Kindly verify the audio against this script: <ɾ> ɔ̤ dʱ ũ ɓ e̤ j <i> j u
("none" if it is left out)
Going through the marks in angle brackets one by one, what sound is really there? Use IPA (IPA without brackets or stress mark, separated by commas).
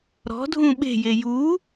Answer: ɾ, e